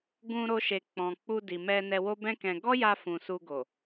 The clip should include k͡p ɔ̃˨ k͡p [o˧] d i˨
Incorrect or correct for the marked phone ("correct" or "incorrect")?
incorrect